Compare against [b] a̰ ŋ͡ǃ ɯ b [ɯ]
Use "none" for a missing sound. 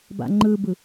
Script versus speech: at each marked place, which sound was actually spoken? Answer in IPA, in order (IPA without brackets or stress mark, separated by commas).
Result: b, ɯ